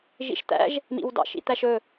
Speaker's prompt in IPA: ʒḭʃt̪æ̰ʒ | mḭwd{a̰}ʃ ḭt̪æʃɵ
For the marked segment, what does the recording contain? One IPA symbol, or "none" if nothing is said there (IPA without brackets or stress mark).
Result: ɑ̰